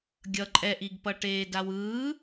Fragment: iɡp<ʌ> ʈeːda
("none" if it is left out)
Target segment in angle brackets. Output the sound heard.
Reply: ʌ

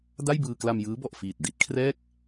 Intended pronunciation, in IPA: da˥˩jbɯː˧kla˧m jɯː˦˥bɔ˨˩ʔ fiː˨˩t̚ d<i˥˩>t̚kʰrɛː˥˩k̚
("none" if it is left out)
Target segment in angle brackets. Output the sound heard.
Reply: i˦˥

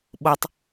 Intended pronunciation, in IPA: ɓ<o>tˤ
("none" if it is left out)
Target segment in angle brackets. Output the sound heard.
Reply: o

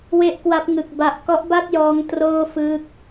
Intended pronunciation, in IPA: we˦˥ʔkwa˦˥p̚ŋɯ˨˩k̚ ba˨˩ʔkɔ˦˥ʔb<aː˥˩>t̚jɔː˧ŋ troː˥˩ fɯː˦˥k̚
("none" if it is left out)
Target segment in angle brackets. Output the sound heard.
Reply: a˥˩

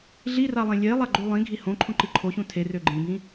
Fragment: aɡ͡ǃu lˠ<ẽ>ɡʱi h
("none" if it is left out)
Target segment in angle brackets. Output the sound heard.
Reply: ĩ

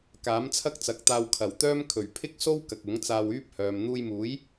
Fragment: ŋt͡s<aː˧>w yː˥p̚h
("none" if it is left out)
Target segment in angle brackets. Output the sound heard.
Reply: aː˧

